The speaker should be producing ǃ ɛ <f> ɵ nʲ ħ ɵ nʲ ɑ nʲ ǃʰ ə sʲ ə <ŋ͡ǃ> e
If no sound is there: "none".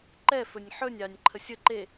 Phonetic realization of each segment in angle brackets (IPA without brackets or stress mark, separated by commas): f, ǃ